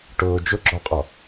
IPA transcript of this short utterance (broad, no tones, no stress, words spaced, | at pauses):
ʈʊː d͡ʒʊ ɡ͡ǁɔqʼɔ